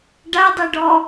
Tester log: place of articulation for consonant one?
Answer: retroflex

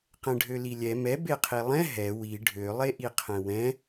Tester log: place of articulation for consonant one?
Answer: uvular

